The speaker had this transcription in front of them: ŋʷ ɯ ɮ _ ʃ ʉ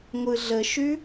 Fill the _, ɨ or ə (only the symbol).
ə